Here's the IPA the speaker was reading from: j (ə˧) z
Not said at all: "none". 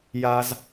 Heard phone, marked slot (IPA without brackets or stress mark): a˧